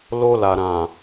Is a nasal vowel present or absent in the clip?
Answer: present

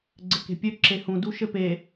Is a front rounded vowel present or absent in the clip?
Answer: present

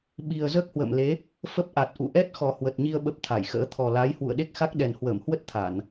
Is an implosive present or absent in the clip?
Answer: present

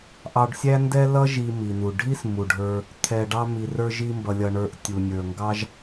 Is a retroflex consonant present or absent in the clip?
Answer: present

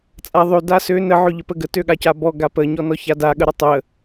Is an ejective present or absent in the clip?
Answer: present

